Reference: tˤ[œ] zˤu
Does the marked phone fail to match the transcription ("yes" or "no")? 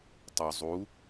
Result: no